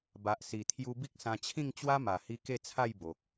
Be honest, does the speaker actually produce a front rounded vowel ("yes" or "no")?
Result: no